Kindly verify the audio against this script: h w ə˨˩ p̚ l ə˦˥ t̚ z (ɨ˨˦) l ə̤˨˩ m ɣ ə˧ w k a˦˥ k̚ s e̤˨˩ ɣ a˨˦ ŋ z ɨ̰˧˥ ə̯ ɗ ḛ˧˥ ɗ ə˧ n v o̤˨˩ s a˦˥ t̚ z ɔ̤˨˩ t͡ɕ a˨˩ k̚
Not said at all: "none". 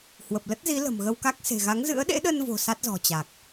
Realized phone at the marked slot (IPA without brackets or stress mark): i˨˦